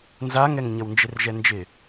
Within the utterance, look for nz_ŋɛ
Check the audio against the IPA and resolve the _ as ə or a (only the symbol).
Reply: a